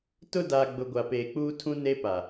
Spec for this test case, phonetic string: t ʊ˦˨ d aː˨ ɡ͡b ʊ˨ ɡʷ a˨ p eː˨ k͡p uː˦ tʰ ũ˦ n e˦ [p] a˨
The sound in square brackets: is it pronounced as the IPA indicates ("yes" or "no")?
yes